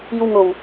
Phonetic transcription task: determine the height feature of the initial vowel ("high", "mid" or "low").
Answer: high